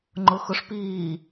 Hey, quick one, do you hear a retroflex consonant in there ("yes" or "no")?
yes